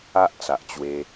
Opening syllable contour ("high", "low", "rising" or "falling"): high